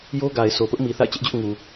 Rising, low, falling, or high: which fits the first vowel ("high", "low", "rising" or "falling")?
high